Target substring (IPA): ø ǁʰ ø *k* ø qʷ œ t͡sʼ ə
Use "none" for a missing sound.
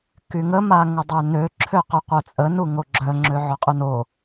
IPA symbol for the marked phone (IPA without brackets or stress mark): q